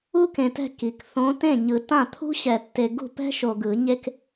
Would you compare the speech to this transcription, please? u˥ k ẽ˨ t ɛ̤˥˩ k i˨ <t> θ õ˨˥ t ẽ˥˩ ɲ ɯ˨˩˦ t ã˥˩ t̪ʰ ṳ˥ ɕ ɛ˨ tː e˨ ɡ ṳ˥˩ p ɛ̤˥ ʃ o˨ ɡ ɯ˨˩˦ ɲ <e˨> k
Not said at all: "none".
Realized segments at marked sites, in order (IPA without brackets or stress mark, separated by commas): k, e˥